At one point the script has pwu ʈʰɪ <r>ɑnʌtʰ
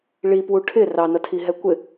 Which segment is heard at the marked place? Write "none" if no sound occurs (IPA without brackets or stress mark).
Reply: r